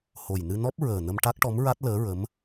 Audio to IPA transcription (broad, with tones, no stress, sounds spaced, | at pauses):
h o˨˩ j n ɨ˧ n ɔ˦˥ p̚ ɹ əː˨˩ n ə˧ m ʈ a˦˥ k̚ ʈ ɔ˧˥ m ɹ a˦˥ t̚ l əː˧˥ ɹ ə˧˥ m